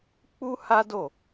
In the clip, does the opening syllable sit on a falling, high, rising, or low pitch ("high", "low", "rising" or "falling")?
high